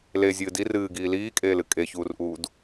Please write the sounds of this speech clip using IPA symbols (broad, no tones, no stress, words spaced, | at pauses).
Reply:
lezʲɨː di rɨːɡiː liːkʼeːlɨ kʼeçuːrʔuːd